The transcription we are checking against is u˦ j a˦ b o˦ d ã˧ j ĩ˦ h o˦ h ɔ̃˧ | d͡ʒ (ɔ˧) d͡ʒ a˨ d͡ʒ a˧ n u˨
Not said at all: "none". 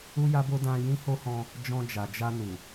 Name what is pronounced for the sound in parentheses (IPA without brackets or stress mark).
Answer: ɔ̃˧